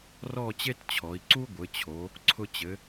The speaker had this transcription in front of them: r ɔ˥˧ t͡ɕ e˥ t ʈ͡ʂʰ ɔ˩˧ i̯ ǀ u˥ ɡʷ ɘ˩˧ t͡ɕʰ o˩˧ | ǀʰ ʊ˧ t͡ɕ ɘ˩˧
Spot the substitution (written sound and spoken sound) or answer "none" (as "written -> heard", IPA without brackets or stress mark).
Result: ʈ͡ʂʰ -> t͡ɕʰ